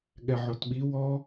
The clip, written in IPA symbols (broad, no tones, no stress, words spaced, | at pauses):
ɠɛʕotɓi wɔ